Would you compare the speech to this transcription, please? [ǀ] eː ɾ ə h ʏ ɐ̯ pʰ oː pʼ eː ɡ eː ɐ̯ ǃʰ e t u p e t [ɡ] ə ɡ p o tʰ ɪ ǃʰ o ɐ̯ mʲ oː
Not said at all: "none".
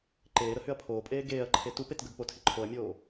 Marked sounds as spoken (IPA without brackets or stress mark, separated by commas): ǃ, ɡ